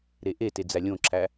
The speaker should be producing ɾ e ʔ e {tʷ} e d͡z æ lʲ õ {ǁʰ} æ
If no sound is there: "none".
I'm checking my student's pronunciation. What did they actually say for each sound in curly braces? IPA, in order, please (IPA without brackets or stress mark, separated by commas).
t, ǁʰ